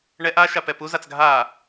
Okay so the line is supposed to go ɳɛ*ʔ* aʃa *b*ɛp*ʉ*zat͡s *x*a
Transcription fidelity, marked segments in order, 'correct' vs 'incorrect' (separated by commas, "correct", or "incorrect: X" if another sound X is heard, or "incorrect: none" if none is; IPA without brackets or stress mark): correct, incorrect: p, incorrect: u, incorrect: ɡʱ